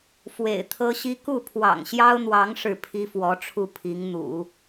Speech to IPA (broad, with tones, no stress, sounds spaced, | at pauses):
f w ḛ˨˩ ɪ̯ t̪ʰ ɤ˥ ɕ i˥ k u˥˩ pʰ w ɑ̰˨˩ ŋ ɕ j ɑ˥ ʊ̯ n̪ w ɑ˧˥ ŋ ʂ ɻ̩˥˩ pʰ i˥ f w ɔ˧˥ ʈ͡ʂʰ u˥˩ pʰ i˧˥ ŋ n̪ ṵ˨˩˦